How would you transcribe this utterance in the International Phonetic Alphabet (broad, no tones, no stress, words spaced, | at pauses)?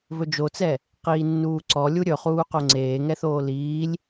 vɵd͡ʒot͡sɛ | qiːnːuːǀɔ lʲuɾʲɵχuː qoŋ͡ǀeːŋɛθoː liːlʲ